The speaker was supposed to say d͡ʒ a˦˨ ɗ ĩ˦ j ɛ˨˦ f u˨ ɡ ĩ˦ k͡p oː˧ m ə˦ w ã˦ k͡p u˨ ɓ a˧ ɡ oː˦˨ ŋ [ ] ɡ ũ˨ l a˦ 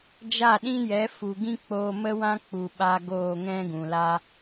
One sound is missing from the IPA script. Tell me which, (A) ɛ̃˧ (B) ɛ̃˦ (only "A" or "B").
B